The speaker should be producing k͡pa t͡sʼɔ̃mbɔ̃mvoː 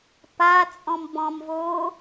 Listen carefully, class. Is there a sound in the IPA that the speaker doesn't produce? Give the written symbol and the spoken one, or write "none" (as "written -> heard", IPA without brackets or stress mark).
k͡p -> p